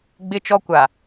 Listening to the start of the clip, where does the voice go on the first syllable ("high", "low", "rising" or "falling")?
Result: high